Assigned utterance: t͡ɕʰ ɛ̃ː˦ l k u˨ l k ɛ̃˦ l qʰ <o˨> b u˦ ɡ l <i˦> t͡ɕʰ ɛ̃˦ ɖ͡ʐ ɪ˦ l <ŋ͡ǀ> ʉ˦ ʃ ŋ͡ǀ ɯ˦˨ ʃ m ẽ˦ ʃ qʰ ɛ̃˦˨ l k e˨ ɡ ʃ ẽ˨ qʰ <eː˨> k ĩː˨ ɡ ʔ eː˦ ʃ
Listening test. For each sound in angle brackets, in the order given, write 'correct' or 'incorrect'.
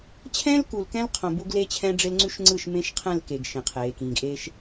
incorrect: õ˨, incorrect: e˦, correct, correct

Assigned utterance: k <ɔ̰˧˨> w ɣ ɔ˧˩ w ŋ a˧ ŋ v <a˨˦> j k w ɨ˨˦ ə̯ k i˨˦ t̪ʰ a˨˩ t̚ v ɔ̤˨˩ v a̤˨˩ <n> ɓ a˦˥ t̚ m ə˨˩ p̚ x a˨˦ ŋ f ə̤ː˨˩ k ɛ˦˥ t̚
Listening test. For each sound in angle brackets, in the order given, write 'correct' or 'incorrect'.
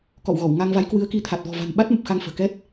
correct, correct, correct

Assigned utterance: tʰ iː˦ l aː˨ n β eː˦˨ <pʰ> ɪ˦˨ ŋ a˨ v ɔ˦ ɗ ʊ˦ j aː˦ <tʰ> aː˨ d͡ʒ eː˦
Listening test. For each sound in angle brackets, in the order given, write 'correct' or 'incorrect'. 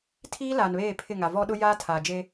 correct, correct

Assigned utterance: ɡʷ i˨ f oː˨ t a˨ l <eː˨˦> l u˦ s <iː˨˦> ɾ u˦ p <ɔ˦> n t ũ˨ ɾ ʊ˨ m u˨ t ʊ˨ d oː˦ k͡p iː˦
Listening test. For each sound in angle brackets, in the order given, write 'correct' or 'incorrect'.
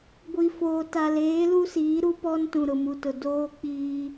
correct, correct, correct

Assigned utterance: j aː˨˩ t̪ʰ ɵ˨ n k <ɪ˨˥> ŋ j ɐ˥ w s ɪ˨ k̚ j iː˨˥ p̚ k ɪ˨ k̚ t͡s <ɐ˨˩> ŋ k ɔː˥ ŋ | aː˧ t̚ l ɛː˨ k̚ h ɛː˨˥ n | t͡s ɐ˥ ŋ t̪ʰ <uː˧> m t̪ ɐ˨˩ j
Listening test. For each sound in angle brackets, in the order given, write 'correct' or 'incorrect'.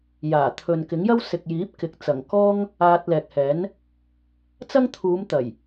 correct, correct, incorrect: uː˨˧

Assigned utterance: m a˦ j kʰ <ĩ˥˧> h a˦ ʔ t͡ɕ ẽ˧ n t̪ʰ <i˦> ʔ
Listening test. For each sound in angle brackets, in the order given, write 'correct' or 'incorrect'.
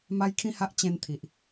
incorrect: ĩ˦, incorrect: i˨

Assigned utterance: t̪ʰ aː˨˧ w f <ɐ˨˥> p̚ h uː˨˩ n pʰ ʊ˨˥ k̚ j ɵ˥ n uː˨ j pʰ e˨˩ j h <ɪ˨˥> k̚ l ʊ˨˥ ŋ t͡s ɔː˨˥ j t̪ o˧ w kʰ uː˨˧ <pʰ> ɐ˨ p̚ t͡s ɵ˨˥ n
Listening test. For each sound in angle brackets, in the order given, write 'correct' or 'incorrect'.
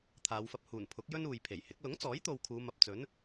incorrect: ɐ˧, correct, incorrect: m

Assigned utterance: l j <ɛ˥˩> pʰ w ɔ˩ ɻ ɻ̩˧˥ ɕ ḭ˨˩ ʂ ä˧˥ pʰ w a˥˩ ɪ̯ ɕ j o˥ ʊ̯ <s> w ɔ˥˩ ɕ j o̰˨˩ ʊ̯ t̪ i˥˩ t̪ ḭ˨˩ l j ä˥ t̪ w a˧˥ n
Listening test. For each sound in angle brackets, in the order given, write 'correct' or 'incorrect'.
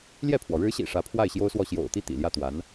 correct, correct

